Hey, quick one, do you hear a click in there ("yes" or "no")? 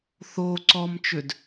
yes